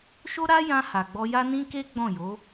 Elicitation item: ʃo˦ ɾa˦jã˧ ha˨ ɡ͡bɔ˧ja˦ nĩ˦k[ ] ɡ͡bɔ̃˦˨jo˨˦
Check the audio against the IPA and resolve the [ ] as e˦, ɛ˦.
e˦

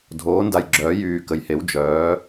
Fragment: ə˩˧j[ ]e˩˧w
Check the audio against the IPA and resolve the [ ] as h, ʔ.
h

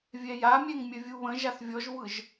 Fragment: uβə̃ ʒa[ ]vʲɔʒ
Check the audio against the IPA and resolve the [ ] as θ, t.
θ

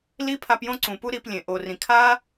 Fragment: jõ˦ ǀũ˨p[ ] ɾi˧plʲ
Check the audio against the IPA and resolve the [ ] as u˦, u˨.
u˦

